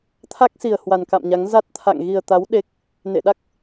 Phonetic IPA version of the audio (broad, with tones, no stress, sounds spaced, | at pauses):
t̪ʰ a˦˥ k̚ s i˨˩ ə̯ h w a˨˩ n k a̰˧˨ m ɲ a˨˦ ŋ z a˦˥ t̚ t̪ʰ a̰˧˨ ŋ ɣ i˨˩ ə̯ t̪ a˨˦ w ɗ e˦˥ k̚ | n ḛ˧˨ ɗ a˦˥ k̚